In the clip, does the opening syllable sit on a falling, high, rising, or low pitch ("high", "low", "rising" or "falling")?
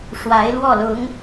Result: rising